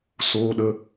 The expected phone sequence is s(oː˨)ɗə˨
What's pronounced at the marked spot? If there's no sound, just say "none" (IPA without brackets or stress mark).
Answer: oː˨